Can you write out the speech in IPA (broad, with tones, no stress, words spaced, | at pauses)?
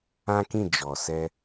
ã˦kĩ˦˨ d͡ʒɔ˨sɛ˧